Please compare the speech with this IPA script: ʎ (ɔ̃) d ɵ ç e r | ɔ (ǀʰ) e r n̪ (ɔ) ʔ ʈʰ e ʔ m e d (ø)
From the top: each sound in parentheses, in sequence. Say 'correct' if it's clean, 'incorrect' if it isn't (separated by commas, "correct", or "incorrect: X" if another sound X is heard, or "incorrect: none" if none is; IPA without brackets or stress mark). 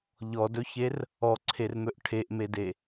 incorrect: ɔ, correct, incorrect: ɵ, incorrect: e